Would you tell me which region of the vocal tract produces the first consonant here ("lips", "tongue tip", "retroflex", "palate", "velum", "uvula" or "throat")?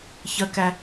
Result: palate